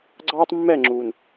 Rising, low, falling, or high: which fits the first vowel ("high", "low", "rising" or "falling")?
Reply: high